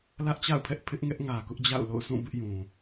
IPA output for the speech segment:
l ä˦ ʔ t͡ɕ a̰˦˨ ʊ̯ pʰ ɛ˦ ʔ pʰ ɪ˦ ʔ ŋ ɛ˦ ʔ ŋ ä˨ k ʊ˦ ʔ d͡ʑ a̰˦˨ ʊ̯ l o̰˦˨ ʊ̯ s ũ˦˨ b ɪ˦ ʔ j ũ˨

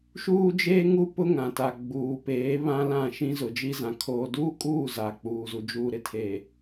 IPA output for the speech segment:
ʃ uː˦ d͡ʒ eː˦ ŋ u˦ p ʊ˦ ŋ ã˨ t a˨ ɡ͡b uː˨ p eː˨˦ β ã˦ l ã˦˨ ʃ ĩ˦ z ʊ˨ d͡ʒ i˦ z ã˨ kʰ oː˨ d uː˦ kʼ uː˦˨ z a˨ k͡p uː˨ z u˨ d͡ʒ uː˨ ɾ ɪ˨ tʰ eː˨

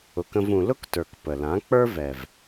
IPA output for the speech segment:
ʊ˧ k ə̃˦ v ũ˧ l ʊ˦ k t ə˞˨ k p ə˨ l ã˨˦ k͡p ə˞˦ v ɛ˨ v

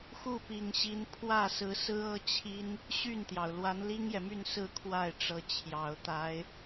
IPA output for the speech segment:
x u˥˩ p i˨˩ ŋ ɕ i˧˥ n pʰ w ä˥˩ s ɹ̩˧˥ s ɹ̩˥ ɤ˥ t͡ɕʰ i˥ n | ɕ y˥˩ n t̪ j ɑ˩ ʊ̯ l w a˧˥ n l i˥ ŋ j ɛ˨ m y˥˧ n s ɹ̩˥˧ kʰ w a˥˩ ɪ̯ ʈ͡ʂ ɤ˧˥ t͡ɕʰ j ɑ˨˩ ʊ̯ t̪ a˧˥ ɪ̯

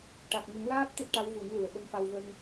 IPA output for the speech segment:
ʈ a˨˩ k̚ ŋ ə˨˩˦ ŋ l aː˦˥ p̚ t̪ e˦˥ t̚ ʈ a˧˥ w v u˨˩˦ n l u˨˩ ə̯ ɓ ə˧ m f a˧ w v ə˧ ŋ

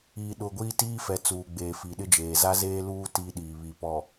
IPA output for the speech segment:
iː˨ ɗ ʊ˨ ɡʷ iː˦ t iː˦ f ɛ˨ t͡s uː˨ ɡ͡b eː˨ f i˨ ɗ ɪ˦ d͡ʒ eː˨ z a˦ z eː˦ l uː˦ t i˦ ɗ iː˨ β i˨ p ɔ˨

